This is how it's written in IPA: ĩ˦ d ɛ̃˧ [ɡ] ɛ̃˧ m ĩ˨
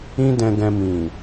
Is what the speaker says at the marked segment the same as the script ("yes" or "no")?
yes